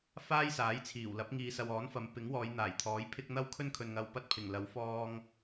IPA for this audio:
f aː˥ j s aː˨˥ j t͡sʰ iː˨˩ w l ɐ˨˥ p̚ ŋ iː˨ s ɐ˨ w ɔː˨˥ n f ɐ˨˧ m p ɪ˨˥ ŋ w ɔː˨˧ j n̪ aː˨˩ j t̪ʰ ɔː˨˥ j pʰ ɪ˥ k̚ n̪ ɐ˥ w kʰ ɵ˥ n kʰ ɵ˨ n ŋ ɐ˧ w p ɐ˥ t̚ pʰ ɪ˨˩ ŋ l ɐ˨˥ w f ɔː˧ ŋ

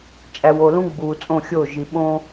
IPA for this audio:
t͡ʃʼ æ˨ w o˨ l ũ˦ ɡ͡b uː˨ t͡sʼ õ˦˨ xʲ oː˦˨ ʒ i˨ ɓ õː˦

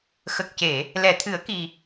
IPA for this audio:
x ə˨˩ k̚ c e˨˩˨ | l ɛ˨˩˨ t̪ʰ ɨ˨˩˦ ə̯ k i˨˩

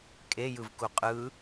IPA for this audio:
kʼ e j ɯ v k u qʼ ɯ

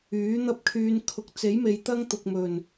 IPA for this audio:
yː˨˥ n̪ ɐ˥ p̚ kʰ yː˧ n kʰ ʊ˨ k̚ t͡s e˨˥ j m e˨ j t̪ ɐ˥ ŋ t̪ ʊ˨ k̚ m ɵ˨˩ n

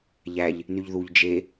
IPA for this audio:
ʎ æ ʎ | n y ʎ ð u ʎ d͡ʒ e

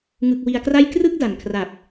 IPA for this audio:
ŋ ɯ˨˩ k̚ w i˨˩ a̯ k r a˥˩ j k r ɯ˥˩ k̚ d a˩˦ n kʰ r a˨˩ p̚

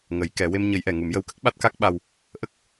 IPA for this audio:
ŋ ə˨˩˦ j k ɛ˨˩˦ w e˧ m ɲ ə˨˩˦ j ʔ ɛ˨˩˨ ŋ u˨˩˦ m j ə˧ w k ə˦˥ k̚ ɓ a˦˥ t̚ k a˦˥ k̚ ɓ a˧ w | ʔ ə˦˥ k̚

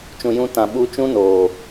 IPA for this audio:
t͡ʃ ũ˨ j ũ˨˦ t ã˨ ɓ u˧ t͡ʃ ũ˦ n oː˨

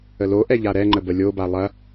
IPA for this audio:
ə l o ʔ ɛ ʎ a ɾ ɛ ŋ͡ǃ ə b ə lʲ o b a lˠ ɐ

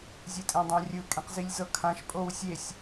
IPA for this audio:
zʲ ɯ tʼ ẽ dˤ ã rʲ ɯ kʼ ẽ q z i lʲ z ɤ kʰ ã ʃ pʼ o w sʲ e sʲ

